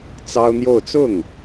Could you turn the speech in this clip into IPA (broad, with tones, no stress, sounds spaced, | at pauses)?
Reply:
t͡s ɑ˥ ʊ̯ n̪ j o˥˧ ʊ̯ t͡s ʊ˥˩ ŋ